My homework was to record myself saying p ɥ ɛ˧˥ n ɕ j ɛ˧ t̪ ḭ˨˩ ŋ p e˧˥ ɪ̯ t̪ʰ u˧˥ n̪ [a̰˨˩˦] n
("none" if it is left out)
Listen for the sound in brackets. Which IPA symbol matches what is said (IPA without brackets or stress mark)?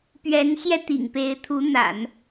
a̰˨˩˦